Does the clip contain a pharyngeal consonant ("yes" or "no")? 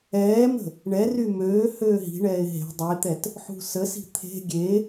yes